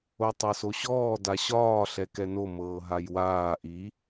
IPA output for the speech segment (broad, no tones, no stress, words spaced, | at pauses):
otˤɤsoɕɔː daɕɒː ɬɛkɛno mɤːɦajwaː ʔi